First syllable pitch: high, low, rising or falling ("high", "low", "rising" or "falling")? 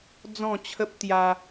falling